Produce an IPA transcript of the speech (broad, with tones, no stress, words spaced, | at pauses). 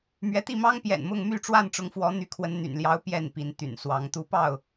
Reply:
mɥɛ˨˦t̪i˥˨mɑ˦ŋ pjɛ̰˨˩nmʊ˥˨ŋ my˥˨ʈ͡ʂwa˥˨nʈ͡ʂʊ˨˦ŋfwɔ˨˦ n̪y˨˦kʰwə˨˦nn̪y̰˨˩n ljɑ˨˦ʊ̯ pjɛ˥˨npi˨˦nt̪y̰˨˩n swɑ˨˦ŋ t̪u˨˦pɑ˥˨ʊ̯